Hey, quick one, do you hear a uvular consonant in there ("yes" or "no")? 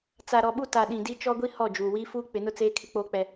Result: no